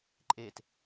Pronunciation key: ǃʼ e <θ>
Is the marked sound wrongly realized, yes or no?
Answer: yes